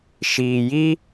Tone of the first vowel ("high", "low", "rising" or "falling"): low